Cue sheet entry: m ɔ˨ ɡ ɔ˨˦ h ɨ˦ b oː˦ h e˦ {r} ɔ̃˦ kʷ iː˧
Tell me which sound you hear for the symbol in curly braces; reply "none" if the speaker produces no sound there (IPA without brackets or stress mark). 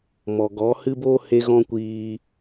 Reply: ɣ